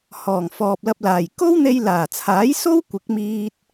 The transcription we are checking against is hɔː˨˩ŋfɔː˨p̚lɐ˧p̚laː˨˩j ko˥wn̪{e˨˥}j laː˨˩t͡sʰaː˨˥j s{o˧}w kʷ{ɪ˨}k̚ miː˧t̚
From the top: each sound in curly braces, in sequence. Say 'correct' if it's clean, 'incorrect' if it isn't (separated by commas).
incorrect, incorrect, incorrect